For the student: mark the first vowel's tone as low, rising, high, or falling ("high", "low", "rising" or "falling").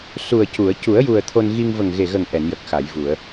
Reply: low